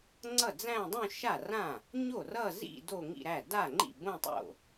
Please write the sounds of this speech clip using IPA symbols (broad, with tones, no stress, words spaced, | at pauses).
ŋ͡ǀʌ˥˩d͡zæ̃˥˧ dˤũ˥˧ʃa˥˩rã˥˩ | ɲo˥˩rʌ˥˧zḭ˥˧ do˥˧ŋḭ˥˧ɾæ˥˩ da˥˩ŋ͡ǃḭ˥˩ bõ˥˧tˤo̰˥˩